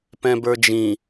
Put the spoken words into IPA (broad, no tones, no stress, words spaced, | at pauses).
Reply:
pɛ̃bə˞d͡ʒĩ